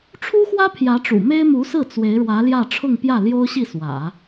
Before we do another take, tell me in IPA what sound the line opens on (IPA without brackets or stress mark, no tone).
ʈ͡ʂʰ